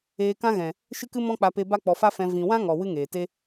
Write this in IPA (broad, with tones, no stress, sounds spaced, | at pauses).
eː˧ k ã˦ ɣ ɛ̃˨ | ʃ ɨ˦ k ɨ˦ m ɔ̃˦ k͡p a˧ p e˧ b a˦ k͡p ɔ˧ f a˦ f ɛ̃˧ v ĩ˨ w ã˦ ŋ ɔ˨ w ɨ˦ ŋ eː˨ t e˦